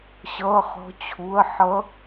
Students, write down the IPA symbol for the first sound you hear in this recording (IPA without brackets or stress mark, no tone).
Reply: ɕ